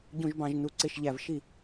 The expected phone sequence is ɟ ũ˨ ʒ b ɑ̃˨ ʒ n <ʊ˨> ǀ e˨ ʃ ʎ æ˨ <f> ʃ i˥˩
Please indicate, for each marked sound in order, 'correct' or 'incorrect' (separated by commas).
incorrect, incorrect